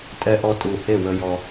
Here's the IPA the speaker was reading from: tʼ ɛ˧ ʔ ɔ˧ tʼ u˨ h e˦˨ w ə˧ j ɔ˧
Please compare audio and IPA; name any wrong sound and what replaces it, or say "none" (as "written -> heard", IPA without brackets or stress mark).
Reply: none